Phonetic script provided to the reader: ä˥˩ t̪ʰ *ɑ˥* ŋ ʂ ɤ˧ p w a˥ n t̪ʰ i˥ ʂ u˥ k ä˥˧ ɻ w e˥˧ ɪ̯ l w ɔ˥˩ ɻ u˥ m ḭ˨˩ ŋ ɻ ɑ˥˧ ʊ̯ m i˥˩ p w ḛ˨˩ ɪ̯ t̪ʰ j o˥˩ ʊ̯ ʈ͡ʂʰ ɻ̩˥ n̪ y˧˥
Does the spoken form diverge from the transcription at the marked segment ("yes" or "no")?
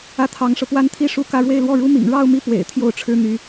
yes